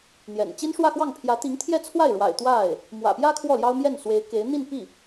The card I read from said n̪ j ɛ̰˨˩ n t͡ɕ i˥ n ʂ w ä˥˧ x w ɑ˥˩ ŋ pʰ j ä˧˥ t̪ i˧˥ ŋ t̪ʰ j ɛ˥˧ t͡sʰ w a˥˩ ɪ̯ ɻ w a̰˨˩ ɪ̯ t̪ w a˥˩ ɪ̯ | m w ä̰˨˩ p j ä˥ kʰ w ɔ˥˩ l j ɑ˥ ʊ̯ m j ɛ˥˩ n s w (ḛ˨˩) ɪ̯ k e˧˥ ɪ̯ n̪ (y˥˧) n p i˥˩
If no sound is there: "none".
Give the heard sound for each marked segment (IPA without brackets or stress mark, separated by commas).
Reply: e˧˥, i˥˧